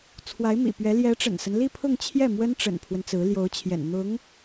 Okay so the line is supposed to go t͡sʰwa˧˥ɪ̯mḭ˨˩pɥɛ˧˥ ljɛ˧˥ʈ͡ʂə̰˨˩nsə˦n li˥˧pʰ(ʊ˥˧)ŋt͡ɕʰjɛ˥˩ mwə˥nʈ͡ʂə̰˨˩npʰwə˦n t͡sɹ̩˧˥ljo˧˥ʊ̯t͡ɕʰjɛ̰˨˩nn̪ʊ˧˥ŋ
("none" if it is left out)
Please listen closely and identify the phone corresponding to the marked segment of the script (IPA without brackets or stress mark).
ʊ˥˧